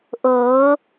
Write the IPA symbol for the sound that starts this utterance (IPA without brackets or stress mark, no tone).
ʔ